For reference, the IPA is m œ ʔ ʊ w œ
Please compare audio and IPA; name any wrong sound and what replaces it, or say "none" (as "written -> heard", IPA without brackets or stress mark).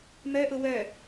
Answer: none